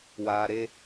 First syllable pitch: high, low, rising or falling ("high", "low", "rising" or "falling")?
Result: low